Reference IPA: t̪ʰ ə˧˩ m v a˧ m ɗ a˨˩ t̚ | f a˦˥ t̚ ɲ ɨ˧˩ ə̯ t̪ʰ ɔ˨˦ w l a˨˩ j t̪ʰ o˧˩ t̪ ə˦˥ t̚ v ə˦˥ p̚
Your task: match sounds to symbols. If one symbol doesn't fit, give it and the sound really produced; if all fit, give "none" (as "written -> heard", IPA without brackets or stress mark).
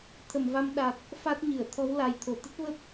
none